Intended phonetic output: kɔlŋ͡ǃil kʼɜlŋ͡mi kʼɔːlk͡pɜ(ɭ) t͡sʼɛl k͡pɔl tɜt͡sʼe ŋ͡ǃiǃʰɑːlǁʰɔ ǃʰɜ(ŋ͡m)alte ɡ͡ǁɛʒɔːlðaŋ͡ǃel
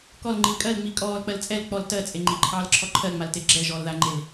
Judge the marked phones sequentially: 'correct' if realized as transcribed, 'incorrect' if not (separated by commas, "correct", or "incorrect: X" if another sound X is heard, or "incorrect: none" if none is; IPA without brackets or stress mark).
incorrect: l, correct